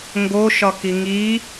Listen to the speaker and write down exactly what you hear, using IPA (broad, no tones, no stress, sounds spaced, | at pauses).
ŋ ɡ o ʃ ɒ k i ŋ i